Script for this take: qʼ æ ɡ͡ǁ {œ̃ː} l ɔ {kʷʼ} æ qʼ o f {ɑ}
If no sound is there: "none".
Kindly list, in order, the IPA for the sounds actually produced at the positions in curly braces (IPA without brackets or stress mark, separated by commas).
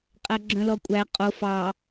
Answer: œ̃, kʷʼ, ɑ